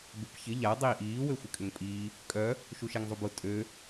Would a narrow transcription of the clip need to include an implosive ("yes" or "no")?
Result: no